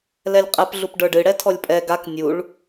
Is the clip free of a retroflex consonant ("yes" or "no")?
no